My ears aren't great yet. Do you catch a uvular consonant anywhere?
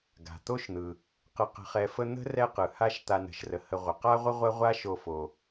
yes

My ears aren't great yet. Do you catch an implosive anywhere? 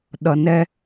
yes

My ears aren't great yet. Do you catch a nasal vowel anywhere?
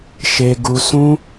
yes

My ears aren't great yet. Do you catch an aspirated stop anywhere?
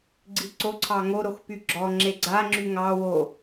yes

